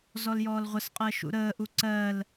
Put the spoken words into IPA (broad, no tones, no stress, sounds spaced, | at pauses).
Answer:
z ɔ l j ɔː l ʁʷ ə s qʼ ɜ ʃ ṵ ɾ əː ʔ u ǀ ɜ l